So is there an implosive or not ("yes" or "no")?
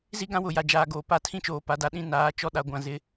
yes